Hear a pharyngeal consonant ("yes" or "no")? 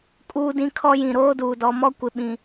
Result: no